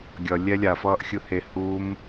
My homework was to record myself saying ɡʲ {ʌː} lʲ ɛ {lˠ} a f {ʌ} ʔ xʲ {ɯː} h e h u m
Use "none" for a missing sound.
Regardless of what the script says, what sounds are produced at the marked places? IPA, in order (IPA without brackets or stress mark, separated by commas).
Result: ʌ, lʲ, ʌː, ɯ